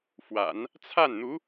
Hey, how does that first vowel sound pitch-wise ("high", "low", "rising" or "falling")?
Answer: low